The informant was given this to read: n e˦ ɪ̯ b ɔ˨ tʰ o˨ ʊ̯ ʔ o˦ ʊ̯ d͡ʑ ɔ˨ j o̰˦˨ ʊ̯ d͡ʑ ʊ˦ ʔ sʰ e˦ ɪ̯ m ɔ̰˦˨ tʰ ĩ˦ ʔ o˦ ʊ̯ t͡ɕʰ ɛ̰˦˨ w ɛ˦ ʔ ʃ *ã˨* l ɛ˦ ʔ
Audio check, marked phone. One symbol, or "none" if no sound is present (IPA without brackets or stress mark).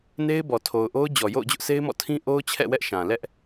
ã˨